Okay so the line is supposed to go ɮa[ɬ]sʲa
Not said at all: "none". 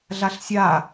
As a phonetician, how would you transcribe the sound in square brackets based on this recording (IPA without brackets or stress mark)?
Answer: ɬ